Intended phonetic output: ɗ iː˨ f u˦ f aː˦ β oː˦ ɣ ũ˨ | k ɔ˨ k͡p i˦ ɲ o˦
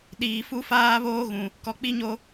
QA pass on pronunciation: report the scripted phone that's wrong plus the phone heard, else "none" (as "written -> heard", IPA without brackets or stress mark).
none